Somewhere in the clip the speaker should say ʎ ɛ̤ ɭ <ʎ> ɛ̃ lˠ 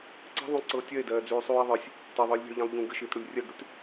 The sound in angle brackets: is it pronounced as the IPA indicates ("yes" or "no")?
yes